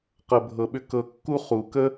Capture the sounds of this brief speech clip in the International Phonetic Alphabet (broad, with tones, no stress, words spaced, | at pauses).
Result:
qɤ˨bʱɤ˨ɓʏ˧ kɤ˧kːu˦ χu˨ kə˦